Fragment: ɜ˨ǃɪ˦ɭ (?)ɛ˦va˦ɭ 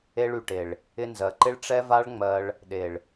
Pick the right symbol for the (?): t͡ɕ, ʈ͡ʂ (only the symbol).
ʈ͡ʂ